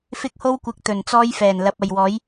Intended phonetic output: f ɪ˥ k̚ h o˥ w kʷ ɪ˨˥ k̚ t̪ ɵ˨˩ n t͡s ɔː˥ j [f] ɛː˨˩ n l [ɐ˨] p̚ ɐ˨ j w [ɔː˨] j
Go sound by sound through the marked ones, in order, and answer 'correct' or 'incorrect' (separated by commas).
correct, incorrect, incorrect